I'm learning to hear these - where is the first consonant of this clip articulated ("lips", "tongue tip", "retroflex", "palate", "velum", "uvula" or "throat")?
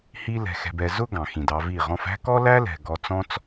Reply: throat